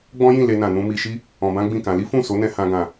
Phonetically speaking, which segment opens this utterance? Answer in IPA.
ɡ͡b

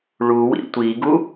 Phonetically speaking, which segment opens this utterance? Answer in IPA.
ɭ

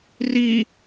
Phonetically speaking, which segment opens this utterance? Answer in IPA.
r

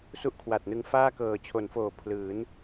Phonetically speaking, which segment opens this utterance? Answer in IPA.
s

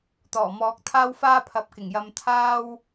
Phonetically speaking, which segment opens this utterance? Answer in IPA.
t̪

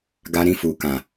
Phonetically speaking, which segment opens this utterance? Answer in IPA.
ɡ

